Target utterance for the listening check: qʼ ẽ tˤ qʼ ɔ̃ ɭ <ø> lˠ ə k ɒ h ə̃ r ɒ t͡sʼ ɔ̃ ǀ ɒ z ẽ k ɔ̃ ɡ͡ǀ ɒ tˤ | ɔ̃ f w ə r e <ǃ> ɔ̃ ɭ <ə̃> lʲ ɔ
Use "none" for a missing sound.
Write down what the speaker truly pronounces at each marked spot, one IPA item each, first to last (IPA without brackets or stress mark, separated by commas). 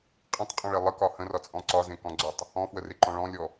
e, ǃ, ɔ̃